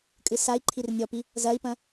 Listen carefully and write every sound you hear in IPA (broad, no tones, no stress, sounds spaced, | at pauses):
kʼ ɨ s a i̯ ǃʰ i r nʲ ɔ p i | z ɐ i̯ p ɐ̃